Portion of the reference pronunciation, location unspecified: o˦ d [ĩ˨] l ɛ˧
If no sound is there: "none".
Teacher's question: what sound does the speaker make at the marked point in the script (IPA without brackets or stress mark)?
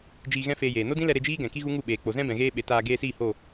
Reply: ĩ˦